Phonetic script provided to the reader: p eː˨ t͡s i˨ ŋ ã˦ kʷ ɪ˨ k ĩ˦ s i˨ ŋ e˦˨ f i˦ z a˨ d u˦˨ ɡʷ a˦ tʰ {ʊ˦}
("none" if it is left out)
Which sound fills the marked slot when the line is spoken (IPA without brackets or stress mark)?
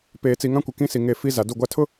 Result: ʊ˦